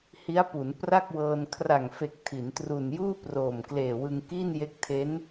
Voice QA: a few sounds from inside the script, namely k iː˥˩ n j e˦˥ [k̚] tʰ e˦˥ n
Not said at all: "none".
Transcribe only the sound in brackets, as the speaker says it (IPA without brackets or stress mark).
k̚